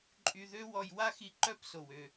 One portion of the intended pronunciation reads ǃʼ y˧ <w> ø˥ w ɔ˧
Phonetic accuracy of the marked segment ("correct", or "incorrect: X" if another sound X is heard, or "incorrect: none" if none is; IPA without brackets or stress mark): incorrect: ð